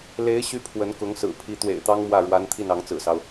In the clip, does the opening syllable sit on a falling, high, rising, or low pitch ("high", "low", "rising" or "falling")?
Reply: rising